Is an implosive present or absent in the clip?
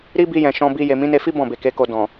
absent